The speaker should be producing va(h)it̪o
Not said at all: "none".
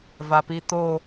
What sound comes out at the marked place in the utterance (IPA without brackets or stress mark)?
p